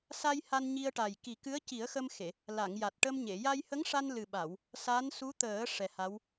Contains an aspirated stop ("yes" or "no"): no